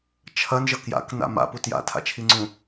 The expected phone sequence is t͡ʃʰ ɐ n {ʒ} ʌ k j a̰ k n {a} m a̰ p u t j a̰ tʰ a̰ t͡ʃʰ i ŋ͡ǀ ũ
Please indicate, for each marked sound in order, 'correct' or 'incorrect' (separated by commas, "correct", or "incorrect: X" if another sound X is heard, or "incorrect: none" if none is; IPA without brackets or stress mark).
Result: correct, incorrect: a̰